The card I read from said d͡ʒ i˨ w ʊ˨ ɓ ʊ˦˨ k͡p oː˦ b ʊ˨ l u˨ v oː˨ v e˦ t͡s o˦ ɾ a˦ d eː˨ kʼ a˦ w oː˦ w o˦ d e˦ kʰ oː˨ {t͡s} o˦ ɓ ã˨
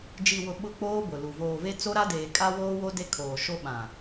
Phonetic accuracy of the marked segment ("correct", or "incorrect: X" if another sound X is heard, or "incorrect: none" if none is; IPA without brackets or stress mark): incorrect: ʃ